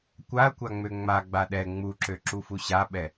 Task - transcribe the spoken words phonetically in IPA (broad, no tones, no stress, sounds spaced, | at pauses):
kʷ a ɐ̯ kʷ a ŋ͡m ø ŋ͡m a ɡ͡b a ɗ ɛ ŋ͡m u ǁ ø ǁ u f u ɕ a ɓ ɛ